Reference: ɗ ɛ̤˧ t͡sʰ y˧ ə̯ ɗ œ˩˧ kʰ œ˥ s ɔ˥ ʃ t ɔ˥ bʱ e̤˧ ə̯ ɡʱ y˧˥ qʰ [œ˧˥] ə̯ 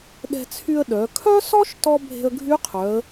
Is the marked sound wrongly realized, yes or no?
yes